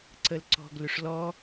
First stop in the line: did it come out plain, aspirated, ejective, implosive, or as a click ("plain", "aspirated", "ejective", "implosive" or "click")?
click